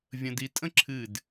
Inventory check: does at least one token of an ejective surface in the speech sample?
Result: yes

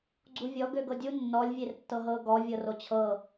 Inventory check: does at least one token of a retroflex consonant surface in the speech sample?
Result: no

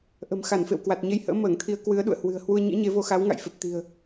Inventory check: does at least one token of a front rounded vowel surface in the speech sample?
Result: no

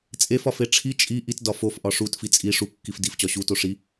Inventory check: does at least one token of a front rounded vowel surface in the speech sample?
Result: no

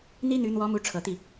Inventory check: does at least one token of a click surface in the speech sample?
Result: no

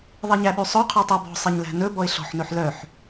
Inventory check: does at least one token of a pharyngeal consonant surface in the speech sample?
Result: yes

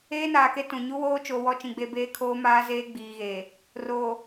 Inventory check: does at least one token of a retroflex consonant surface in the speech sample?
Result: no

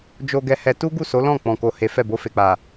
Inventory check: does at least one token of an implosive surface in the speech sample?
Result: no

